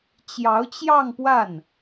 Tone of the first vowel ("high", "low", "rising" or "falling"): rising